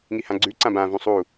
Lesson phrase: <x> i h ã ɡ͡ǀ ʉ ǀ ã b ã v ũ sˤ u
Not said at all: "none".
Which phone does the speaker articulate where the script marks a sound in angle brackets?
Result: ŋ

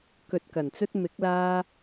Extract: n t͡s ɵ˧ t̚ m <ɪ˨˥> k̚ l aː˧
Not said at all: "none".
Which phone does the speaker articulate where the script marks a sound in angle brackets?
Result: ɪ˨˥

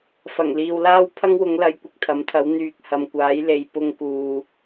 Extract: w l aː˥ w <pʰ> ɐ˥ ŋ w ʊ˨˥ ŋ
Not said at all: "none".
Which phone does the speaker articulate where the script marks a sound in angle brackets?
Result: pʰ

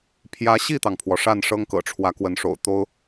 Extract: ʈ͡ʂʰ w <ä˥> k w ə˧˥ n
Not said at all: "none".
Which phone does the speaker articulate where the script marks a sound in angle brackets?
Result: ä˧˥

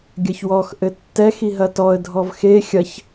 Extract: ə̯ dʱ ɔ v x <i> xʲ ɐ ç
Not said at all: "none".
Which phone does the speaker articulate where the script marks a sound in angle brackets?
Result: e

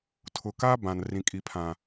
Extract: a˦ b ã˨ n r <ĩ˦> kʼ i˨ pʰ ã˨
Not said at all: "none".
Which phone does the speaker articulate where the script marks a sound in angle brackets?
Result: ĩ˨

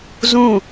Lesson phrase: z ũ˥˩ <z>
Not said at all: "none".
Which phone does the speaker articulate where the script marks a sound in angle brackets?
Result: none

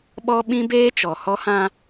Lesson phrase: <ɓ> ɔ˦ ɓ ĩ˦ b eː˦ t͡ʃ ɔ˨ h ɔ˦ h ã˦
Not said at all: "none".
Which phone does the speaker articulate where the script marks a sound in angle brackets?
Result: ɓ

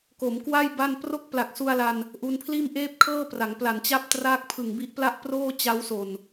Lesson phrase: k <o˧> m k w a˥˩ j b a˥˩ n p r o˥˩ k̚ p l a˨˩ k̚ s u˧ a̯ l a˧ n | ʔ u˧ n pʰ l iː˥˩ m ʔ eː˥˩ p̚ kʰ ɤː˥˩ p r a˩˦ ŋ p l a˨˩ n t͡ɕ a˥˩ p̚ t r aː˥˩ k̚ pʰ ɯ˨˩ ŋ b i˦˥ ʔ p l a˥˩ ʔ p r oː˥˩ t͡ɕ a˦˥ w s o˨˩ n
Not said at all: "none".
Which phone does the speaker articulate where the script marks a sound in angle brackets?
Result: o˩˦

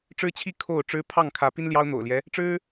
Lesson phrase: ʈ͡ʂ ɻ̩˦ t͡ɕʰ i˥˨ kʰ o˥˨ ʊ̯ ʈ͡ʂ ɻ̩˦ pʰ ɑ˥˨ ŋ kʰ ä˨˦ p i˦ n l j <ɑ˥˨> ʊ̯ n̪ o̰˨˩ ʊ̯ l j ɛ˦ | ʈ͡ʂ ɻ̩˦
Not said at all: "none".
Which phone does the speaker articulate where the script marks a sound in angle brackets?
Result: ɑ˦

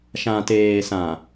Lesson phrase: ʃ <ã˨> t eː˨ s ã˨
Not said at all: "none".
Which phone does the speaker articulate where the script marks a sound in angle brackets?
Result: ã˨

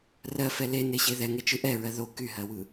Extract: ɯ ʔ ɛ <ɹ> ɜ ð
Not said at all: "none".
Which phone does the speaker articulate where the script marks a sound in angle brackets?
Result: ɹ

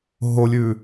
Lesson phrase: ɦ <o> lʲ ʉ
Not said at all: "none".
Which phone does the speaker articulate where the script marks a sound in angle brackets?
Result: o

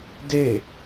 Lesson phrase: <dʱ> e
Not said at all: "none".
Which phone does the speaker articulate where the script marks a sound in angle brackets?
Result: d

